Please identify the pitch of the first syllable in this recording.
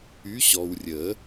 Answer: rising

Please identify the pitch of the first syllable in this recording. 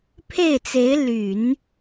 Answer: falling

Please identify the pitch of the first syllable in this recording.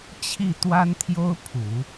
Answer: falling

